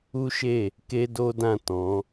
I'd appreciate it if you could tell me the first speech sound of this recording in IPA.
u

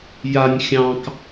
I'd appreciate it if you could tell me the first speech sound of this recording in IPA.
j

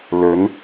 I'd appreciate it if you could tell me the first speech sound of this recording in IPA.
l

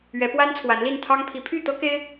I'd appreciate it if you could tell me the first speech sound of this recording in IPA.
ɥ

